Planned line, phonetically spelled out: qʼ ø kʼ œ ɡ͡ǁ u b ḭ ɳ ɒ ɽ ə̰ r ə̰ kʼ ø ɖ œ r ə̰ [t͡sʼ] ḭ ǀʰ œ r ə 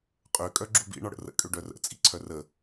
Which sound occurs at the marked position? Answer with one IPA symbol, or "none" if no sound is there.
t͡sʼ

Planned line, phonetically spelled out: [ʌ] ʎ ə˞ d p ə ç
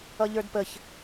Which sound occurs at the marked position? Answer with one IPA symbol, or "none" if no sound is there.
ʌ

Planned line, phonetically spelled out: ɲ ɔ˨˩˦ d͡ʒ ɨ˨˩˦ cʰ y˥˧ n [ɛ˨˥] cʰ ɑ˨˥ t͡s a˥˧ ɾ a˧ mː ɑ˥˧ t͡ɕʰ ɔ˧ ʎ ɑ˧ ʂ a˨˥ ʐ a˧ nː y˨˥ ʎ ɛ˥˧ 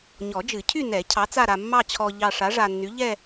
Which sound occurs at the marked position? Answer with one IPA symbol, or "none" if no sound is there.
ɛ˨˩˦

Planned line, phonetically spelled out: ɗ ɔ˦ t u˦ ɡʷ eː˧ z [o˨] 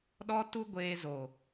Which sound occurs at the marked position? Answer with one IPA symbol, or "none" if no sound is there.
o˨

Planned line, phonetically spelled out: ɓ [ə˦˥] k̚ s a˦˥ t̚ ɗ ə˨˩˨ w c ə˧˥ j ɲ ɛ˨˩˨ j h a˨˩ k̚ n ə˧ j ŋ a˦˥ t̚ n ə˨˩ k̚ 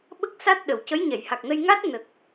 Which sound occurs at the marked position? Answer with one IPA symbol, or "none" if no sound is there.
ə˦˥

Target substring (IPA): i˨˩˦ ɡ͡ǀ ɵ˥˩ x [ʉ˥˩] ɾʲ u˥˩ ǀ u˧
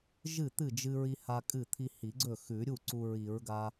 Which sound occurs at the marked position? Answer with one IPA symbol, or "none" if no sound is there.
ʉ˨˩˦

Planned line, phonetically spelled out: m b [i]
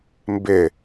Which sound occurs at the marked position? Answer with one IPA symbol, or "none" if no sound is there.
ɪ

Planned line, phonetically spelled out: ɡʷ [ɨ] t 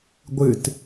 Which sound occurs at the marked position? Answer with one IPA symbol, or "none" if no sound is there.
ɨ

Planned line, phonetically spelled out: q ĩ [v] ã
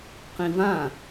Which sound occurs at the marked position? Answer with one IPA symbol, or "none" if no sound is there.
v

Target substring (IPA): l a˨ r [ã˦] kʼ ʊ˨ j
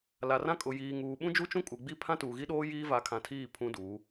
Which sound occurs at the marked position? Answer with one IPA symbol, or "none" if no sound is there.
ã˦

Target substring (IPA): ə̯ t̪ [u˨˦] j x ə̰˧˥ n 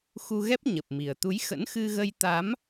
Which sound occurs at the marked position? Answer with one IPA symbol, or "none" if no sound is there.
u˨˦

